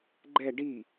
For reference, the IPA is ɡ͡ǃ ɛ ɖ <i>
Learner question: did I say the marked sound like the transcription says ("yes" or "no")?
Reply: yes